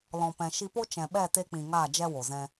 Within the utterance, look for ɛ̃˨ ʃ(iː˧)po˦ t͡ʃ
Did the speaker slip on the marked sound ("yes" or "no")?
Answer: yes